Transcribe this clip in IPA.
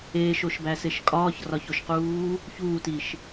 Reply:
eːʃoʃbæseʃ kʼɒːçrɒçoʃquː | çuːtiʃ

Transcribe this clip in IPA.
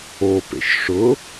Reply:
opḛʃ ʂʊ

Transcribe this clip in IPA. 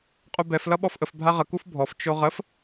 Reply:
qʼubɛf lʌɓɔfʔəf bʱaʁə kufbʱɔf t͡ʃoʁəf

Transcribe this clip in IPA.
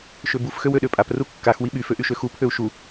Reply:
ʃøbuf xøwøɗøpʼap rukːax wiɓy føʔyʃøxu pʰøu̯ʃu

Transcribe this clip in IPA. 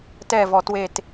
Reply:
tɛ˦˨vɔ˨twe˦˨t

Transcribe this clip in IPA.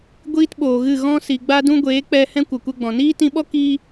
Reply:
ɡʷiː˦tɓoː˨ɣɨ˦˨ ɣɔ̃˦si˨ɡ͡ba˦ dũ˦ɡʷeː˨˦k͡pɛ˧hɛ̃˦ kʷə˨kʷɛ˦ɡ͡bɔ̃˨ niː˦tĩ˧ɓɔ˦ ki˦

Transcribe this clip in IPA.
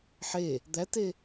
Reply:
ħe | d̪æte

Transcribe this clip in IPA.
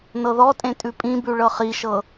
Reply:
nɤðɔtʼẽ tʼʉpʼĩbʉ ɭɤχiʃɤ

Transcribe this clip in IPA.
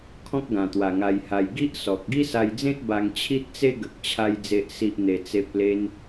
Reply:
kʰɔ̃˦k̚ɡã˨˩t̪wa˨˩ ŋa˧jha˧j ɡi˦ʔ sɔ˨k̚ ɡi˦sa˧jd͡zẽ˦t̚ ba˧ŋt͡ɕʰi˦t̚t͡se˦ ɡə˨k̚ t͡ɕʰa˧j d͡ze˨ʔsi˨ʔ n̪e˧t͡se˦p̚ le˧n

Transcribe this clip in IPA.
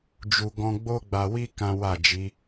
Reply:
d͡ʒu˧ɡɔ̃˦ ɡ͡bo˦ɡ͡ba˧wi˦ kã˦wa˦˨d͡ʒi˨˦

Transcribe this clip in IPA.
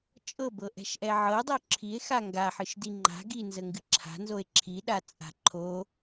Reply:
t͡ʃʼɤbɤʔɛ̤ʃʔɛ ʕɤdˤo ǁʰie̯xa ŋɡaħɨʃdi ŋ͡ǃa̤ ɡinzəŋɡɨ ǁʰa̤nzoe̯ ǁʰiɗat͡sʼa̤ ǃʰo

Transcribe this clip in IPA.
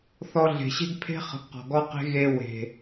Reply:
θɔ˧ɮe̤˨ɕe̤˦ɡpʰe̤˦ χə̤˧ɡqɔ̤˨ɡɔ˦qe̤˦ ɣe˧we̤˨

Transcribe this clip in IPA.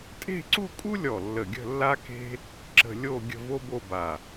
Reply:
tʼe̤˥˧ǀu˥˧kʼu˥lʲɔ˧˩ lːə˧˩ɡʲə̤˥˧lːa˥ke̤˥ | ǁə̤˧lʲo˥˧ ɡʲə̤˥˧vo˥bo˥˧ba˧˩

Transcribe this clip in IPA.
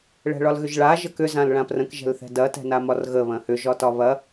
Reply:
ɭɛ̤ɭɒlɣʏʒɭa ʒəkʏ zãlɭãprə̃k ʒɛ̤lθɛ̤dɐ tɛ̤namɒrɣə βɐ̃hʏ ʒɒtɒβɐ

